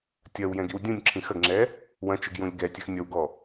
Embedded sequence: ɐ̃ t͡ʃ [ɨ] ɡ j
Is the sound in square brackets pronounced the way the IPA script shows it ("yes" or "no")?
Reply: yes